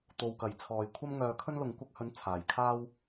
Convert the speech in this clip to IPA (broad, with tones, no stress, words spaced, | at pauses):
t̪o˨wkɐ˨˩j t͡sʰɔː˨jkʷʰɐ˥mŋœː˧kʰɵ˥n lʊ˨˧ŋkʷɐ˧k̚hɵ˨˥n t͡sʰaː˨jkʰaː˥w